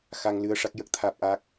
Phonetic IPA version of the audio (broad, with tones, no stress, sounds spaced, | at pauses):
x a˧ ŋ l ɨ˧ ə̯ ʂ a˦˥ k̚ j ə˦˥ k̚ t̪ʰ aː˦˥ p̚ ʔ a˦˥ k̚